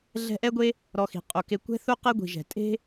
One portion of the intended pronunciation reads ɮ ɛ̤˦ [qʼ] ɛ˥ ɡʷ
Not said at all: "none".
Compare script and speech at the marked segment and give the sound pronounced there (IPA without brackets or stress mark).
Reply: ʔ